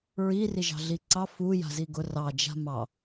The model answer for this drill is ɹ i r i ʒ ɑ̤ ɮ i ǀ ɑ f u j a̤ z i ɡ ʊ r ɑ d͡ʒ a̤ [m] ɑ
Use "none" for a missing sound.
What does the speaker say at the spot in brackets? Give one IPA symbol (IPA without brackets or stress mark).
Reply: m